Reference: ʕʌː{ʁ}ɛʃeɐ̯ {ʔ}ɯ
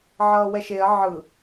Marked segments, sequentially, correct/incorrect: incorrect: w, incorrect: ʕ

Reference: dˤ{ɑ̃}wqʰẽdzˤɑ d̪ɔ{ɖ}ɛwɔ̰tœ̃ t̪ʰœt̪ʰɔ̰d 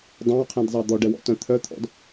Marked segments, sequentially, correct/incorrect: correct, correct

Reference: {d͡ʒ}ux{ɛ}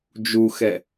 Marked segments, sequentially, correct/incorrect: correct, correct

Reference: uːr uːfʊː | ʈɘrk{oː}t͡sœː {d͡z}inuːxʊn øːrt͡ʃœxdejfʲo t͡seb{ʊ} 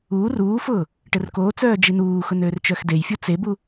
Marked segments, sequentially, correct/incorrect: correct, incorrect: d͡ʒ, incorrect: u

